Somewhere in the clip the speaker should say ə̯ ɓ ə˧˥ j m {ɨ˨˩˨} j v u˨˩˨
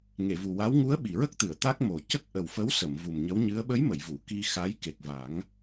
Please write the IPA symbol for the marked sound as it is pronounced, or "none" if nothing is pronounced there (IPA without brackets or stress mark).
ə˨˩˨